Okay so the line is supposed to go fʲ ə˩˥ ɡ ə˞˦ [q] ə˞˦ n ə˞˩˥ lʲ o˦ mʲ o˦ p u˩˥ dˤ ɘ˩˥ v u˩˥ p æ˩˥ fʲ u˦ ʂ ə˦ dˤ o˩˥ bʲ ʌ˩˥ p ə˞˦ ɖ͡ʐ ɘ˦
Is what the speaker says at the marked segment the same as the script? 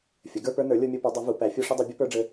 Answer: no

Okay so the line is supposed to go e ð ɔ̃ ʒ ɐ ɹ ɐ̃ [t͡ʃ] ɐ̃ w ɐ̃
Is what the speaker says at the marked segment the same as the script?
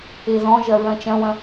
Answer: yes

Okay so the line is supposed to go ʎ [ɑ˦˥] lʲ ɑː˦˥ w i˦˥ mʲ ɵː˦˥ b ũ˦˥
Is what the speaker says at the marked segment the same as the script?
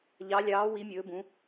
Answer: yes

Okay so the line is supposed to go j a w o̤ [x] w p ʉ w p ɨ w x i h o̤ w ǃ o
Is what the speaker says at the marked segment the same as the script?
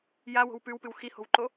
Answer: no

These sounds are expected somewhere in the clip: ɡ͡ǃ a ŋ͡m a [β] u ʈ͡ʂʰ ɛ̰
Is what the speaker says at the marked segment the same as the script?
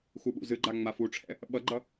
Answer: no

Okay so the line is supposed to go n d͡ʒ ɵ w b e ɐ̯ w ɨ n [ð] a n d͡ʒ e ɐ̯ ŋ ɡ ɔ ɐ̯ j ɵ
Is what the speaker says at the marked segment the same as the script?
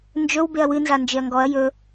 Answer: no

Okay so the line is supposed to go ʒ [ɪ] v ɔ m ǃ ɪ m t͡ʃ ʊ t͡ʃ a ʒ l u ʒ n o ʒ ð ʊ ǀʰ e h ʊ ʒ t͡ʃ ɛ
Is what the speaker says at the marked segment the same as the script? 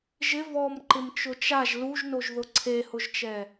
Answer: yes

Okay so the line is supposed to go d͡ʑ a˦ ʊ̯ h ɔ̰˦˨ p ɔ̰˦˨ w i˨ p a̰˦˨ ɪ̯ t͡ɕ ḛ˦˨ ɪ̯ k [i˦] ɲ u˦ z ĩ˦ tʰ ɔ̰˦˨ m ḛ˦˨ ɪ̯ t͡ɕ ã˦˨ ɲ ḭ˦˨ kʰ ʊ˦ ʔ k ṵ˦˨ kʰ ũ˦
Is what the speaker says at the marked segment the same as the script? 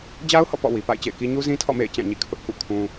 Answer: yes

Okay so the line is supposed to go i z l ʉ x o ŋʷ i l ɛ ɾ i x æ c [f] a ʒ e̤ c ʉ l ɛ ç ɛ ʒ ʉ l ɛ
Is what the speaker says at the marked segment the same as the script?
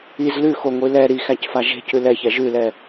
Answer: yes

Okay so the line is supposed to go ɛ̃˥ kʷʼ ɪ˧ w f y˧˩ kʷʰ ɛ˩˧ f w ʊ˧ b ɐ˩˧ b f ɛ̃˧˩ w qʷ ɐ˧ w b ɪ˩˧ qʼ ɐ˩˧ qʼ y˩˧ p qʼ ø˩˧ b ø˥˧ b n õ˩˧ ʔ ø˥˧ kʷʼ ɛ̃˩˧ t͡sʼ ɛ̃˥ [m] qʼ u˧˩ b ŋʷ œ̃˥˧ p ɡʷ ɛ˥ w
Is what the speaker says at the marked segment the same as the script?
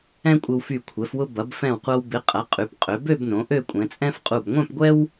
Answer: no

